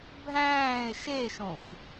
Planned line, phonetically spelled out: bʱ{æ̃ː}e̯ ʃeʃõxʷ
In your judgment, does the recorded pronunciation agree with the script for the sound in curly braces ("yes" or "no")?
yes